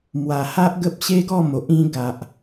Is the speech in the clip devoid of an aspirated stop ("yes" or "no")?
yes